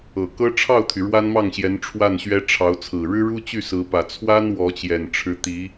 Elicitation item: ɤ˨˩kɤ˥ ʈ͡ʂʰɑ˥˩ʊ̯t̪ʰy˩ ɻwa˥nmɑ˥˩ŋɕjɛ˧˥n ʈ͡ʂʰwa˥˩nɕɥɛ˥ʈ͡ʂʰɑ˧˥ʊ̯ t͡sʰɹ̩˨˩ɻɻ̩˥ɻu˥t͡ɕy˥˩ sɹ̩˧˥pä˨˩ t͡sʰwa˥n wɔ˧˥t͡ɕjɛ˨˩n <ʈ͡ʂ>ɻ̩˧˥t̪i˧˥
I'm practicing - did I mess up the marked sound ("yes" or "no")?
yes